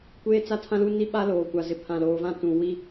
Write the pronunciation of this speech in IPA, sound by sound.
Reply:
kʷ eː˦ t͡s a˦ tʰ ã˦ l u˦ n i˦ ɓ a˦ l oː˨ kʷ a˨ z ɪ˨ pʰ ã˨ l oː˨ v ã˦ t ũ˨ w i˦

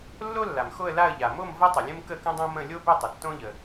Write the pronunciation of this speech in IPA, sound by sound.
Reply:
lː o˥ lː a˩ m x o˥˧ ə̯ l a˥˧ ə̯ ʎ a˩ m o˥˧ m v ə˥ tˤ ə˩ lʲ ə̃˥ m k ə˥˧ k ə̃˥ dˤ õ˥ m ə̃˥˧ lʲ o˥ b ʏ˥˧ tˤ ə˩ tː õ˥ ʎ ə˩

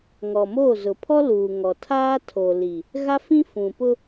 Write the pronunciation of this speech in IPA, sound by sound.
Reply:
ŋ ɔ˨ m oː˦˨ z ʊ˨ pʰ ɔ˦ l uː˨ ŋ ɔ˨ tʰ aː˦ tʰ o˨ l i˨ | ɣ a˦ f ĩ˦ f ũ˨ p ʊ˦

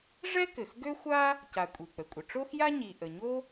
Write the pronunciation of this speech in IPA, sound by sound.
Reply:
ʐ ɛ˥ k ɘ˩ x ɡ ø˥ xʷ a˥ | c a˩ kʷʼ i˩ k͡p ə˩ kʷʼ ə˩ ʈ͡ʂ o˥ x j a˥ ɲ i˩ ʔ ə˩ ɲ o˥

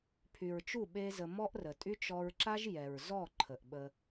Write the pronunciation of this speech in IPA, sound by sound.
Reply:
pʰ y˨ ɹ t͡ʃ u˦˨ ɓ e˦ z ə˧ m ɔ˦ ʔ r ə˨ tʼ y˦ t͡ʃ ɔ˧ ɹ ǁ a˦ ʒ j ɛ˨ ɹ z ɔ˦˨ ǃʰ ə˨ ʔ ɓ ə˧

